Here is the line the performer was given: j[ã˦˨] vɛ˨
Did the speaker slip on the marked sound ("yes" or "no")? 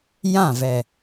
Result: no